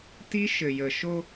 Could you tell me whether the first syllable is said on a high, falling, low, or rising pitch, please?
high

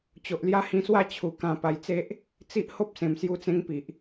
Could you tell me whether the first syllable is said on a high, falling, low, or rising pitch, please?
low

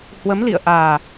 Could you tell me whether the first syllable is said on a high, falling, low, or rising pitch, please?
rising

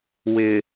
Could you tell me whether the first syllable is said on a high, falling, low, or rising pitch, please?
low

